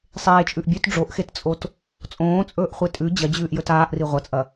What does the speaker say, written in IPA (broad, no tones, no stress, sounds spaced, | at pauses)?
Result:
sˤ eː t͡ʃʼ ʉ ʔ bʲ ʉ t ɖ͡ʐ o ʔ x e t t͡sʼ o t | t͡sʼ õː t͡sʼ ɵː ʔ χʷ e tʼ ʉ d͡ʑ ɐ d͡ʑ ʉː ʔ j ɵ t aː ʔ r i ʁʷ ɐ t͡sʼ ɐ